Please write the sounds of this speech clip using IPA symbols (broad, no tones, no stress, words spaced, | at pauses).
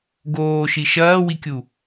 ɡoːʃi ʃɐːwikʲu